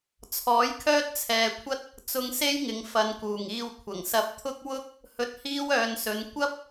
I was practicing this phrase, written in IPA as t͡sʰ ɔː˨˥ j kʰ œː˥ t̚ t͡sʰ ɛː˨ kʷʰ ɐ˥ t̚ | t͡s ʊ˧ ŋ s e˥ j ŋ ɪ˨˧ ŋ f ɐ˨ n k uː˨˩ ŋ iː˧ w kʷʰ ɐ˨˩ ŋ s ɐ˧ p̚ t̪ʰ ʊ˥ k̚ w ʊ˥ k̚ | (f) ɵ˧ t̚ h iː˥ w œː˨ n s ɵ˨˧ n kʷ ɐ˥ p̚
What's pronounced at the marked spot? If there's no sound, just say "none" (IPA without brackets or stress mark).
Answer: h